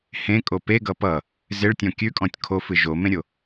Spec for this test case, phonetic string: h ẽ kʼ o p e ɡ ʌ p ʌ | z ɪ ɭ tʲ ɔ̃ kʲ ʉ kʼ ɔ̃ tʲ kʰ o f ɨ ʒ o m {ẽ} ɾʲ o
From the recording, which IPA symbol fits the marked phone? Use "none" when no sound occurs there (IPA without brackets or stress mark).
ẽ